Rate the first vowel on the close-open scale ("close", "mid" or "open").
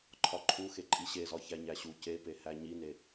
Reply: open